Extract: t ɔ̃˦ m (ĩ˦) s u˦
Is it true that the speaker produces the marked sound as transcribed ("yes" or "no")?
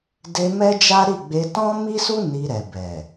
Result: no